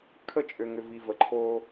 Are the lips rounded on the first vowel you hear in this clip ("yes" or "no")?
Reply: no